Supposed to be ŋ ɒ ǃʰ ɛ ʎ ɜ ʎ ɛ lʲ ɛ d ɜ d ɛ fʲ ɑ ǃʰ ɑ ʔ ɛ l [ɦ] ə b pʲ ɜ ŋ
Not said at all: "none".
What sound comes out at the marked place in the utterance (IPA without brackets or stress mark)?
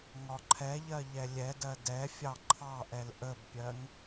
ʔ